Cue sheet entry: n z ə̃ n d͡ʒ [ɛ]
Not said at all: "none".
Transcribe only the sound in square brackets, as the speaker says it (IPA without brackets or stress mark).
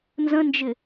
ɪ